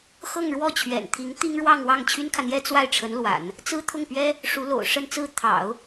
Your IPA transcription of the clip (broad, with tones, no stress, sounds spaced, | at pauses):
x ɤ˥˧ ŋ ɻ w ɔ˥˩ t͡ɕʰ ɥ ɛ̰˨˩ n t̪ʰ i˧˥ ŋ t̪ i˥ ŋ ɻ w ɑ˥˧ ŋ w ɑ˥˩ ŋ t͡ɕʰ y˥ n kʰ ä˨ n̪ j ɛ˥ t͡s w a˥˩ ɪ̯ ʈ͡ʂʰ ə˧˥ n l w a̰˨˩˦ n | t͡s ɹ̩˥ t̪ʰ ʊ˥˩ ŋ p ɥ ɛ˥ | ʂ u˧˥ l o̰˨˩ ʊ̯ ʂ ə˥˧ n t͡s ɹ̩˥˩ t̪ʰ ɑ̰˨˩˦ ʊ̯